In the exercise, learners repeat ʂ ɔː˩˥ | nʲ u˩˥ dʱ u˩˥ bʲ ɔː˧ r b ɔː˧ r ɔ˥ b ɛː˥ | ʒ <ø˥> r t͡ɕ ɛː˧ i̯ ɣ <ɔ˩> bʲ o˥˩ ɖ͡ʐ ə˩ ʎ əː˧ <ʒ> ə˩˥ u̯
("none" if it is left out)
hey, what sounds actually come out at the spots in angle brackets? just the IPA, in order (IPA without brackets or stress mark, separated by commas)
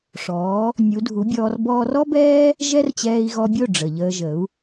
ɛ˥, ɔ˧, ʒ